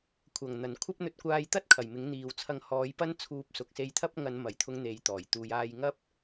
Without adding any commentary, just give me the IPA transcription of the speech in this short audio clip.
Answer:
kʷʰɐ˨˩ŋn̪ɐ˨˩nkʷʰɐ˥p̚ n̪ɵ˧t̚kʷaː˧jt̪ɐ˥t̚ kʰɐ˨˩jmɪ˨˥ŋn̪iː˨w t͡sʰɐ˨˧ŋhɔː˨˧j pɐ˥nt͡sʰuː˧p̚ sʊ˨˥k̚se˧jt̪ʰɐ˥p̚ ŋɐ˨˧nmɐ˨˩jt̪ʰʊ˨˧ŋ n̪e˨˧jt̪ɔː˨˩jt̪uː˨˧j aː˧jŋɐ˥p̚

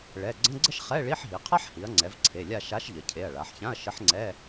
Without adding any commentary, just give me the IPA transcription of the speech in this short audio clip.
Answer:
ɭɛ˩˧˩ ɡ͡ǀə̃˧˥˧ɡ͡ǀə˥ʃ χɛ˧˥˧ ɭi˧˥˧ħɦi˩˧ qʰa˥ħhi˩˧ɐ̯ŋ͡ǀɛ˩˧v ǀʰe˩˧˩lʲa˥˧ ʃa˧˥ʃ ʎə˩˧cʰe˩˧˩ɐ̯ɭa˩˧ħçã˧˥˧ɐ̯ ʃə˧˥ħŋ͡ǀɛ˧˥˧

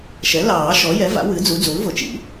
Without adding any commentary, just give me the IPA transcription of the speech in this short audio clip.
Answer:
ʃɛ˩˥lɑː˨˩˦ ʃɔ˩˥jɛ˩˥va̰˩˥ wɨ˩˥d͡zu˩˥ d͡zu˩˥lvʊ˩˥t͡ʃḭ˩˥

